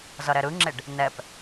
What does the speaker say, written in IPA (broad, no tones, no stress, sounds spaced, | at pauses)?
z ʌ ɾ ɛ ɾ ɯ ŋ͡ǁ e ɖ | n ɛ p